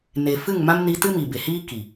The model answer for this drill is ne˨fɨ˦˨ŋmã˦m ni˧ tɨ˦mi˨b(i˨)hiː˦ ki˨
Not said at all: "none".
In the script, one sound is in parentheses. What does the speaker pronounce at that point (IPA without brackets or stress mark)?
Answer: e˨